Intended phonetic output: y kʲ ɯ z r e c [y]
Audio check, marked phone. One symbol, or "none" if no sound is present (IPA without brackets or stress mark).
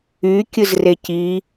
i